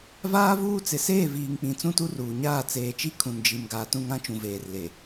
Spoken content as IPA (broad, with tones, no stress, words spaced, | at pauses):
vaː˦ vuː˦t͡sɪ˨ seː˦˨viː˨ŋk͡pĩ˨ t͡sũ˦tu˦ruː˨ɲaː˦˨ t͡seː˨t͡ʃi˦ kʰũ˨nd͡ʒi˨m ɡaː˨tũ˦˨ ŋã˦t͡ʃũ˨veː˨rle˨